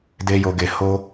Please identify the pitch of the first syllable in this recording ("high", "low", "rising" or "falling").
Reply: high